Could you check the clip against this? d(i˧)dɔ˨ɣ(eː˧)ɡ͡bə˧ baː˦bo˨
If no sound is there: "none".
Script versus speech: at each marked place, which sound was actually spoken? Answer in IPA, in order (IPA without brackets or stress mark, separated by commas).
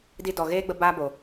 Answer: i˧, eː˦